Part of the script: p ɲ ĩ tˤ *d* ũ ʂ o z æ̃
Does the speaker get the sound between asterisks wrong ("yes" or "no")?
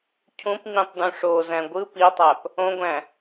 no